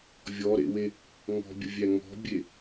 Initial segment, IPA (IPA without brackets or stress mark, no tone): vʲ